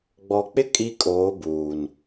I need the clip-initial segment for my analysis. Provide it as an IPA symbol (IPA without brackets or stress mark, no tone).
ɡ͡b